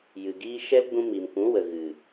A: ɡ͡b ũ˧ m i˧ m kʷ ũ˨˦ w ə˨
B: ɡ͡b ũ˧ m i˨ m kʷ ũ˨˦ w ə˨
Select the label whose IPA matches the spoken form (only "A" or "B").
B